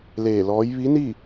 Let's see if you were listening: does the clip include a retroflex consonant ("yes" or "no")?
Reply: no